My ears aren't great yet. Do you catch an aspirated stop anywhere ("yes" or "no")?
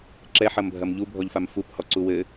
no